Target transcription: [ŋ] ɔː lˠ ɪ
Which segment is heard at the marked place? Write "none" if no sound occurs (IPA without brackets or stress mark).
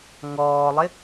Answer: ŋ